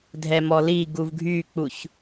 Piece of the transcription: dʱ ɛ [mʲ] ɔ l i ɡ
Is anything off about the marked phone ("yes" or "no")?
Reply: yes